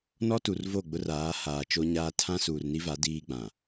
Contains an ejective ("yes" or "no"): no